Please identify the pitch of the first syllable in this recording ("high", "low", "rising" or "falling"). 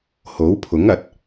rising